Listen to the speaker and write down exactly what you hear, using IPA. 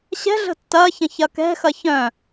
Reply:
ɕ ɛ̤ ɮ ə̤ tː ɐ ç ɐ̃ ç ɐ k ɛ̤ x ɐ ç œ̃

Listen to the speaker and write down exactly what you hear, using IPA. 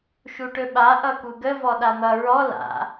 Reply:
ʃ u ʈ ɵ ɓ a ʔ ʌ k u ɡ ə v ɔ ɗ a n̪ ʌ ɹ ɔ l a̰

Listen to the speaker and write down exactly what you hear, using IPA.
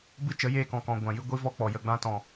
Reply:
b ɨ˦ t͡ʃ ə˨˦ j eː˧ k ɔ̃˨ k ɔ̃˨ ɡʷ ã˨ j ɨ˧ ɡʷ i˦ v ɔ˦ k͡p ɔ˨ j ə˨ ɡ͡b ã˧ t ɔ̃˨

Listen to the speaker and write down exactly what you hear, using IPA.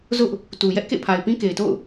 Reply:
z ʊ˦ ʔ | t u˨ j ɛ˦ ʔ k ḛ˦˨ pʰ a˨ ɪ̯ p ĩ˦ k e˨ ɪ̯ t o̰˦˨ ʊ̯

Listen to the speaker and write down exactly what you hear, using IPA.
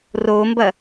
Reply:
r o m b ɐ

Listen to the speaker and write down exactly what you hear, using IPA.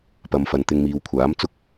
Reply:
p ɐ˨ m f ɐ˨ n t̪ ɪ˧ ŋ m iː˨ w kʷʰ aː˨˥ m t͡s ʊ˥ k̚

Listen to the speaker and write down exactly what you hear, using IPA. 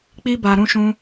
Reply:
k͡p i˦ b a˧ ɾ ũ˦ ʃ ũ˦

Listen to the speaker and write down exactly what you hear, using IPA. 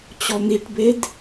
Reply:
t͡ɕ ɔ n̪ i ʈ b e d

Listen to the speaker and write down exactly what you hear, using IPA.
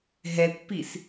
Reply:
ɦ ɛ kʷ p i s

